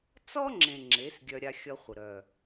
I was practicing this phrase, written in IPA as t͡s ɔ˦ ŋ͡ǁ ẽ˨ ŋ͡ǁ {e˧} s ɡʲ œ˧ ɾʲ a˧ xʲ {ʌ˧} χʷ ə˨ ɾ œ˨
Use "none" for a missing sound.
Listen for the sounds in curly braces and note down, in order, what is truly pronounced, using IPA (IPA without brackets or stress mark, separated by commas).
e˨˦, ʌ˧